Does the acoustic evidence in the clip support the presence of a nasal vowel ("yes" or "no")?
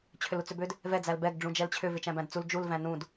yes